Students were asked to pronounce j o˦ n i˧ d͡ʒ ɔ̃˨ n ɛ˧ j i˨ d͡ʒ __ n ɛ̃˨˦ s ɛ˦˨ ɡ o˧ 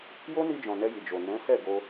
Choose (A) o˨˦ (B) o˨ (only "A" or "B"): B